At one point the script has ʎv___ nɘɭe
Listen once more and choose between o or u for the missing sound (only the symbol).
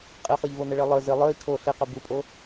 o